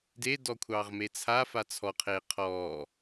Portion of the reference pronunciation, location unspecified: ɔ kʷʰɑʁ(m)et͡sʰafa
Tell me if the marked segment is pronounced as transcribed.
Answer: yes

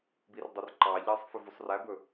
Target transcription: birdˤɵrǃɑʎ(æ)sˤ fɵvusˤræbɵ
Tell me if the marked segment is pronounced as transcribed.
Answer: yes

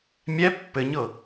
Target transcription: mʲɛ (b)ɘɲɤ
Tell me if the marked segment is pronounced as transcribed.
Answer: no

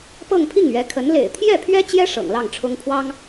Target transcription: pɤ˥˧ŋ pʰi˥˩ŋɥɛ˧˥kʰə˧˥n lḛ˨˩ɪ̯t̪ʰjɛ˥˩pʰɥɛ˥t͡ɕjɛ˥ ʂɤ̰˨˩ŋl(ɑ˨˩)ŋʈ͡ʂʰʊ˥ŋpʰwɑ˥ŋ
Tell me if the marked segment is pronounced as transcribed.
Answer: no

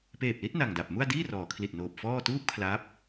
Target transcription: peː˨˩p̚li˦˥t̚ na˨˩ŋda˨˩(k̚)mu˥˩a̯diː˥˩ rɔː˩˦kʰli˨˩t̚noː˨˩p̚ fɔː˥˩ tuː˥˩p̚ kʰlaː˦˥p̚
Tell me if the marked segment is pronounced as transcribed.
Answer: no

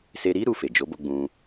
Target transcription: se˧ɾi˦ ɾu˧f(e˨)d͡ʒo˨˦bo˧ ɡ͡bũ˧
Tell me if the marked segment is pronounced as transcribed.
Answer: yes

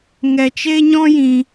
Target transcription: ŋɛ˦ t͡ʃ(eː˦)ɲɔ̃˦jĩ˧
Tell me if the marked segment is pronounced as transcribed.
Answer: no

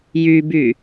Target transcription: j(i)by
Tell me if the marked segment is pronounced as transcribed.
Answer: no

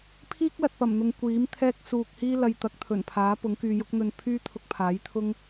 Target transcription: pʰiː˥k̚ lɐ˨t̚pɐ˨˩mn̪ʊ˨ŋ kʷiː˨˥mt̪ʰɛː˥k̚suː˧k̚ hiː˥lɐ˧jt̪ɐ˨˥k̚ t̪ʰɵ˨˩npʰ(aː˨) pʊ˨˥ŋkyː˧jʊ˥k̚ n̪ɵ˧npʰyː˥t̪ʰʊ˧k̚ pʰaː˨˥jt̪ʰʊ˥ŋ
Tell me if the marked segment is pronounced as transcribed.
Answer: no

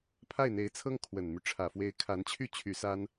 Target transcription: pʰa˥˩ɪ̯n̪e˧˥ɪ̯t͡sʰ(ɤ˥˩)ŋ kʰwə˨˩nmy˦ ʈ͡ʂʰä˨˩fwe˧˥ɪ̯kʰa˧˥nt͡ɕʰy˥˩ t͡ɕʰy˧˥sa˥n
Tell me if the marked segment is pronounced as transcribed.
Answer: no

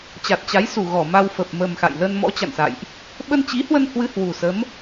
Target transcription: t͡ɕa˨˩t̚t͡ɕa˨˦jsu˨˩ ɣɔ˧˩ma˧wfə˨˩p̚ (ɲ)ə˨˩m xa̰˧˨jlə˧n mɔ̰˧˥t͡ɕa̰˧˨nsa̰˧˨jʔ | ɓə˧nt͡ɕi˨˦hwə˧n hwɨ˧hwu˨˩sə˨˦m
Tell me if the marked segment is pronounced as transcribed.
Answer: no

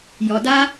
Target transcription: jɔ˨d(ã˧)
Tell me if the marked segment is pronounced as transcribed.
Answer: no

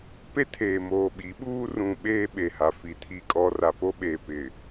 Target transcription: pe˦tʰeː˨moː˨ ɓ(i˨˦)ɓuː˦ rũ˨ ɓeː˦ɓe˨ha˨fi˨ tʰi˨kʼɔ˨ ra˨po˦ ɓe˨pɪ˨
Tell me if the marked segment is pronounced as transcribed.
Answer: yes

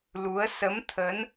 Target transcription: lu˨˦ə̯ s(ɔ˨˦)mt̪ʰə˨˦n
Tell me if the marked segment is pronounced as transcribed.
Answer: no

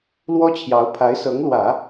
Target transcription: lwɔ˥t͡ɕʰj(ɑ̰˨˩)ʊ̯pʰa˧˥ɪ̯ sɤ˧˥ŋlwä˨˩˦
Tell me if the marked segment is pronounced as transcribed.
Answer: no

